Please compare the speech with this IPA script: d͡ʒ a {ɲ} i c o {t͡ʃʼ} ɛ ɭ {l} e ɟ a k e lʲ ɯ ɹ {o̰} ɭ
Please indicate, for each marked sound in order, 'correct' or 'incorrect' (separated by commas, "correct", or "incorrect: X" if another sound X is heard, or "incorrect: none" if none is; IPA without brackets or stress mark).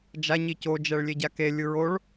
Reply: correct, incorrect: d͡ʒ, incorrect: lʲ, incorrect: o